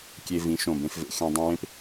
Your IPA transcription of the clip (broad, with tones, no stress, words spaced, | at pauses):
kʲe˧vĩ˩˥ʃõ˨˩ bẽ˧fvḛ˩˥xẽ˧ dˤũ˧wẽ˥p